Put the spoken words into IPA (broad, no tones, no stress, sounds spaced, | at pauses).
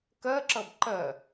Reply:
k ɜ ǁ ʌ b ǃ ɜ